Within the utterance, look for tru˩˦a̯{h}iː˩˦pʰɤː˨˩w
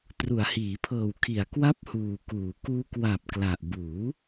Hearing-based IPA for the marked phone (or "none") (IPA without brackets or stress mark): h